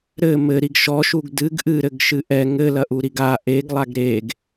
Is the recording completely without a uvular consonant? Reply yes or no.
yes